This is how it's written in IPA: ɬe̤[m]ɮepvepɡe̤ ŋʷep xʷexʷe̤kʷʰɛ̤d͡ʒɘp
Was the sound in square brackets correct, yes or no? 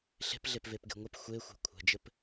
no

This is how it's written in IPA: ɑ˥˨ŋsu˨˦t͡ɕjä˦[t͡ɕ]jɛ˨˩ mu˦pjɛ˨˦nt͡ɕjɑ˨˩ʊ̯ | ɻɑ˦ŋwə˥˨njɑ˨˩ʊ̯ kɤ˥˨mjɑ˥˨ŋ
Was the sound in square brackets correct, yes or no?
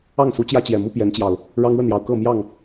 yes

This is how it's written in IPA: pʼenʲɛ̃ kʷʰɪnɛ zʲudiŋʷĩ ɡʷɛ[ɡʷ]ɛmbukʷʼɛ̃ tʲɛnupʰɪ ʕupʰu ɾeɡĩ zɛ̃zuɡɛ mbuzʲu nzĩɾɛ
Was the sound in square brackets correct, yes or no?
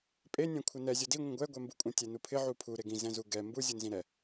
yes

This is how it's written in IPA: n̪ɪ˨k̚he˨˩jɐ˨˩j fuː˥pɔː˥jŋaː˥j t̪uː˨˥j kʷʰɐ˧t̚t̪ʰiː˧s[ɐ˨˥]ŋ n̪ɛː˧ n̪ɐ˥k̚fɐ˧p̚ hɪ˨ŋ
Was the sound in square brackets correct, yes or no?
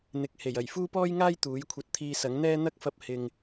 yes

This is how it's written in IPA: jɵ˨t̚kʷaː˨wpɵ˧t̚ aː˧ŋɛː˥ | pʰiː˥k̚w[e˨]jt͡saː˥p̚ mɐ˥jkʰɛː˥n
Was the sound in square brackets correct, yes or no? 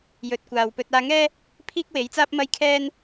no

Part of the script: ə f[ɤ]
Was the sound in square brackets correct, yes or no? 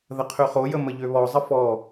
no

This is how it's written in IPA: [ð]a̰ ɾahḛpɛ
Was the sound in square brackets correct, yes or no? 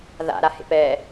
yes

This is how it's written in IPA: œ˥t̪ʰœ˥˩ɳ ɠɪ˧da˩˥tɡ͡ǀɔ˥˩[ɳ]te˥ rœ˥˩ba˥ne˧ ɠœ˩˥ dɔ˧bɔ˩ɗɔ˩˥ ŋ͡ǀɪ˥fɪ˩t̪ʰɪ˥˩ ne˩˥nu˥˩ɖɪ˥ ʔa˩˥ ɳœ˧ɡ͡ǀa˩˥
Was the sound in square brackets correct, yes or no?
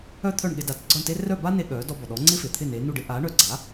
yes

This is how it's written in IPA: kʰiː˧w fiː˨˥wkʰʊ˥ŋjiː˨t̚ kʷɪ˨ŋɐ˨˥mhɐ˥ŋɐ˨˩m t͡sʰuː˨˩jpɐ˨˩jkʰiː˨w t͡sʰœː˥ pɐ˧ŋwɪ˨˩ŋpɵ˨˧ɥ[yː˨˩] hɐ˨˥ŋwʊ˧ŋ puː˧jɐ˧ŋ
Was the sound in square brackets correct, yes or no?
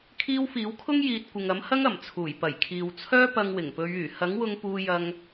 yes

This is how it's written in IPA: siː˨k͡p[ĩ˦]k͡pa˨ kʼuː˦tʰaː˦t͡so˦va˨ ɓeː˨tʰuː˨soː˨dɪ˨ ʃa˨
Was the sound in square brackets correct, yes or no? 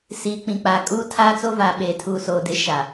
no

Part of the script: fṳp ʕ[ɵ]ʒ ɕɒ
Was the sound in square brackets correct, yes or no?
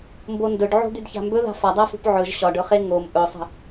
yes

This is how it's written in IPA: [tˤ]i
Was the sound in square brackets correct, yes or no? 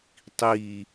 yes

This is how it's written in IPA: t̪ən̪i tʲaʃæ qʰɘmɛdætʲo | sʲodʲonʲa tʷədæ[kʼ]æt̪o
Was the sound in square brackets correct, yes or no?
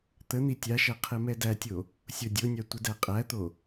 no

